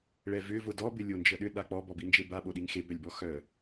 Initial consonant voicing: voiced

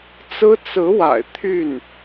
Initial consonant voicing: voiceless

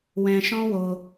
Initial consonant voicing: voiced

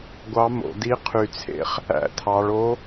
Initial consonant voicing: voiced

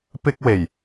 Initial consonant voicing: voiceless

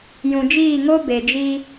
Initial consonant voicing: voiced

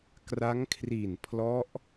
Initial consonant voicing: voiceless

